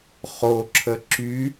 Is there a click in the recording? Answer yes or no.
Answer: yes